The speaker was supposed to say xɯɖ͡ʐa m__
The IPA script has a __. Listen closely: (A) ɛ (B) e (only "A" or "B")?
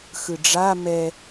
A